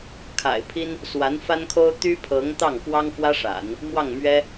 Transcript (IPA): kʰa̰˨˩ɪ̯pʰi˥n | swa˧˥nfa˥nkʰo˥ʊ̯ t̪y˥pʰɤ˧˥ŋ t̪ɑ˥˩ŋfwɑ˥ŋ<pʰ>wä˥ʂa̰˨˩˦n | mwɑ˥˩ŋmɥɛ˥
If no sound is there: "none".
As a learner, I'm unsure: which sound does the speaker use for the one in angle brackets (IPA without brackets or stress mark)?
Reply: f